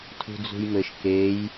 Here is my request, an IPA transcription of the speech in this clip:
tʰ ṳ d͡z ṳ j m ɘ ʃ k e j

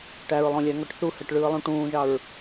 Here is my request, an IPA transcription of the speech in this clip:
ʈ æ ɹ lˠ õ lʲ æ ŋ ɔ ʈ θ u h ɛ ʈ ɭ ɯː lˠ ũ ʈ ũː ʒ ɑ ɹ

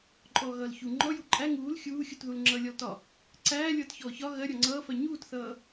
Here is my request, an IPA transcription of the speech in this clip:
ǃʼ ɔː ɣ ʌː l ç u ŋ͡ǃ ɔ j u ǃʼ æ ŋ uː l xʲ uː xʲ u t ð u l ŋ͡ǁ ʌ lʲ ɒ l t ɒ | ǀ æː lʲ ʌː t ç ɔː ç ɒ ɣ ɜ ɾʲ ɒ ŋ͡ǀ ʌː f ɜ ɲ uː t θ ʌː

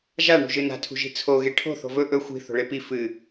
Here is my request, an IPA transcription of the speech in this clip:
ʒ a ɳ ṳ ʒ ɨ n a̤ tʰ ṳ ʒ i̤ t͡sʰ o ɣ e ʈʰ o̤ θ o̤ v ɵ ʔ ɵ xʷ i̤ θ o̤ ɭ e p i f ɨ

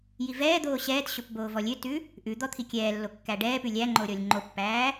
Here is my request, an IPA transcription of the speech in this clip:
j i v ɛː d̪ oː ɕ ɛː t ɕ o p b oː v ɔ lʲ ø t ʉ | ʔ ʉ d̪ ɔ t̪ʰ i kʲ ɛː lː o kː æ ɖ ɛː p ʉ lʲ æ ŋ͡ǃ o ɾʲ ɔ lʲ ŋ͡ǃ o pː æː

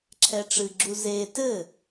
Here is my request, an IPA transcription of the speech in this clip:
ǁʰ ɛ ʈ͡ʂ ɨ ɡ͡ǁ u z e t ɘ

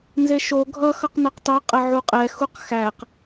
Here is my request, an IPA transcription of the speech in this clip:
n z e ʃ o ɡʱ ʌ x ʌ q n ʌ q t ɑ qʼ ə ʕ u qʼ ɛ x u q x æ q

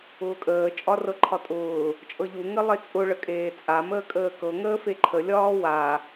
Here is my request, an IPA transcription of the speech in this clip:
ʊː kʼ əː t͡ʃʼ ɒ r ɤ ǃʰ ɒ tʼ ʊː | t͡ʃʼ ɤ ʎ u ŋ ə lˠ e t͡sʼ ʊ ɭ ə kʼ eː t͡sʼ a m əː kʼ əː k ɤ ŋ əː f e ǃʰ ə lʲ ɒː w a

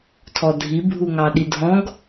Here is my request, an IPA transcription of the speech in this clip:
tʰ ɔ dʱ i bʱ u ŋ ɑ ɗ i dʱ ɔ̃ ɡ

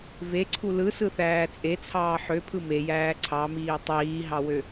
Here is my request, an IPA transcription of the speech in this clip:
v e ǀʰ u l ɯ s ɯ θ æː t͡sʼ e t͡sʰ ɑː ħ ø pʰ ɯ m e j æː ǀʰ ɑ m iː tˤ iː ɦ ɑ w ø

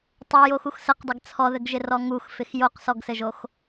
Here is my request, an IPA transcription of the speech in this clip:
tˤ o j o x u x s ə q dˤ ɪ ɡ t͡sʰ ɔ ð ɘ ɡ ʒ ɪ r ɔ ŋ u x f ɪ x j o q s ɔ ɡ s ɘ ʒ o x

